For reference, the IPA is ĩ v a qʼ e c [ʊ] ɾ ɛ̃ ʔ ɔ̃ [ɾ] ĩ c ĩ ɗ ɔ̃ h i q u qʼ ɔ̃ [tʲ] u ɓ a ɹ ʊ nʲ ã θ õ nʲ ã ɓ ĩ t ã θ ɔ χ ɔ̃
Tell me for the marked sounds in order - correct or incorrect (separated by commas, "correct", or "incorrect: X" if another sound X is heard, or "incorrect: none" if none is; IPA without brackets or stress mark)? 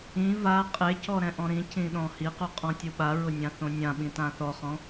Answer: incorrect: ɔ, correct, correct